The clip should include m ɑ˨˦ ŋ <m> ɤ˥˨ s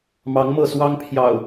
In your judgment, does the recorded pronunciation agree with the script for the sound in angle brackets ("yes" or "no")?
yes